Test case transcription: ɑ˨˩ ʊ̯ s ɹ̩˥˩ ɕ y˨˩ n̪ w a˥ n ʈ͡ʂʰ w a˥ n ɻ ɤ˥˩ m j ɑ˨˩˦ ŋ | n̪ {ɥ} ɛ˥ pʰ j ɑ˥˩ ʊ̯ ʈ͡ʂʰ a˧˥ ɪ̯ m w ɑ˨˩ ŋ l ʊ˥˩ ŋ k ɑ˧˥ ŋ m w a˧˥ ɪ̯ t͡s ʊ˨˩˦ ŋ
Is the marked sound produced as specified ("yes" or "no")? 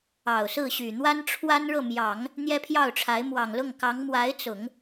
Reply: no